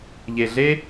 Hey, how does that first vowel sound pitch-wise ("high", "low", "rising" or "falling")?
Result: low